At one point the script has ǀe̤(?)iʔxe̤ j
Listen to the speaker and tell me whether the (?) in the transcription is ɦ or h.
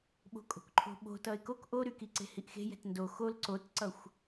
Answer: h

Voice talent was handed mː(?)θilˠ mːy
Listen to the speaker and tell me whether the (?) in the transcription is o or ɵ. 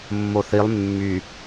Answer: o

